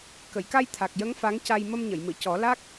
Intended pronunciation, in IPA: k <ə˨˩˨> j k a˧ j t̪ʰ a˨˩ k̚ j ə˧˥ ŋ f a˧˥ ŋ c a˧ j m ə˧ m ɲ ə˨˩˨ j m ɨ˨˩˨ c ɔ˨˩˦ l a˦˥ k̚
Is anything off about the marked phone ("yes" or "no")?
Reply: no